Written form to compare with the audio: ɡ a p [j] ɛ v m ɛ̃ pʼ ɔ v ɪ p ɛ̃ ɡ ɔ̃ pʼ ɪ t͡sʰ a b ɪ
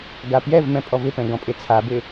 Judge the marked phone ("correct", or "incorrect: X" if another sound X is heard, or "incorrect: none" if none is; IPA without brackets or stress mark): correct